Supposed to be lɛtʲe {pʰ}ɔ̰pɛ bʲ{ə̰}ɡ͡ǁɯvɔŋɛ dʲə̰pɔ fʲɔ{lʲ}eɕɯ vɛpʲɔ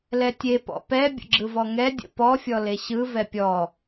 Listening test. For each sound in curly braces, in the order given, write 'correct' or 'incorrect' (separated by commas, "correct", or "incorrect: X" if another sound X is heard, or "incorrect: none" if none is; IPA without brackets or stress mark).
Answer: incorrect: p, correct, incorrect: l